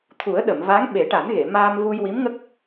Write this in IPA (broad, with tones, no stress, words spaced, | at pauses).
t̪ʰu˨˩˦ə̯ɗə˨˩˨mva˧˥ŋ ɓe˨˩˦ʈa˨˩˦nɣe˨˩˨ maː˧mvu˧j wi˧˥mŋə˦˥k̚